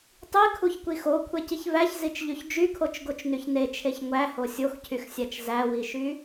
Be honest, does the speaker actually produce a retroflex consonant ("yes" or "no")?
no